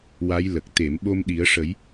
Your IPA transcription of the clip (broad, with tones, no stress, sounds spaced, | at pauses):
w a˧˥ j l ə˨˩ k̚ t̪ e˨˩˨ m ɓ o˧ m ɗ i˨˩˦ ə̯ ʂ ə˨˩˦ j